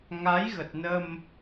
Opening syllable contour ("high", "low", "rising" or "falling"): rising